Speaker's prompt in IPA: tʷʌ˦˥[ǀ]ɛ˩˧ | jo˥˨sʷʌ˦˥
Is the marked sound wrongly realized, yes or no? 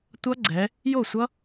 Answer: yes